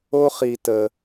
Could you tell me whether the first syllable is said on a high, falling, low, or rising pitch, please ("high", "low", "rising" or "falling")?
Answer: high